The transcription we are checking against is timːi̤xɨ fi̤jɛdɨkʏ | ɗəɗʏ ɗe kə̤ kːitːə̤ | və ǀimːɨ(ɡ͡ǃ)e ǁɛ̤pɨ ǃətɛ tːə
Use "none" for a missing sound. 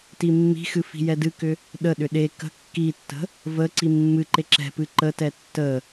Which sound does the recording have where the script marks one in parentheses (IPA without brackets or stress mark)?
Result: ǃ